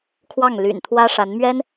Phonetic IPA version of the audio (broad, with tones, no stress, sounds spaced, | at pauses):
kʰ w ɑ˥˩ ŋ l y̰˨˩ n t̪ʰ w ä˥ ʂ a˧˥ n m ɥ ɛ˥ n